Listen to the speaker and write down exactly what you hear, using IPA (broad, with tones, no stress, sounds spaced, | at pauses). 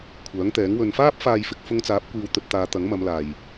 kʷʰ œː˨˥ ŋ t̪ ɛː˨˥ ŋ w ɵ˧ n f aː˥ p̚ f aː˨ j f ɪ˨ k̚ f ʊ˧ ŋ t͡s aː˨˥ p̚ kʷ iː˧ w t̪ ɵ˧ t̚ t̪ aː˨˧ t̪ ɐ˨˥ ŋ m ɐ˨˧ m l aː˨ j